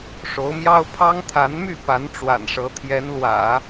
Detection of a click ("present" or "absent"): absent